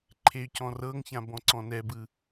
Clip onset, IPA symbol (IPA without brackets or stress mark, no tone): ǃʰ